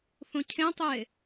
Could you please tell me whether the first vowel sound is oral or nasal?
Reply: nasal